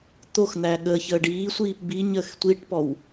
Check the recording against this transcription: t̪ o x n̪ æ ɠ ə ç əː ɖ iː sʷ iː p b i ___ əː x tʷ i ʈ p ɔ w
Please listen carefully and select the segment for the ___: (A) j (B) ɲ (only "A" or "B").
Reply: B